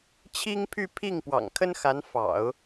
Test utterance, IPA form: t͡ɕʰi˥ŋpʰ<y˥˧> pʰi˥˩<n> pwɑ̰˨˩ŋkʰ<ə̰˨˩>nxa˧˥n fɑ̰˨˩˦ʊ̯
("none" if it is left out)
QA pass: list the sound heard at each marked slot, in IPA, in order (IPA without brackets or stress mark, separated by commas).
y˥˧, ŋ, ə˥